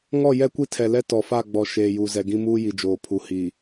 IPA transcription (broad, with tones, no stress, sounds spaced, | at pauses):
ŋ ɔ˦˨ j ɛ˦ kʷ i˦ tʰ ɛ˨ l ɛ˦ t ɔ˨ f a˦˨ ɡ͡b ɔ˨ ʃ eː˨ j u˨ z ɛ˨ ɡ ĩ˦ m uː˦ j i˨ d͡ʒ oː˨ pʰ u˨ h iː˨